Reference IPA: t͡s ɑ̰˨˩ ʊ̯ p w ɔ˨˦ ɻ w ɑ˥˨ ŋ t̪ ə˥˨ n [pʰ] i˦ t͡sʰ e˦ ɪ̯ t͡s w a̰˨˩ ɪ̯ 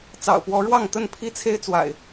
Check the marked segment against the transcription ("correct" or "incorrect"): correct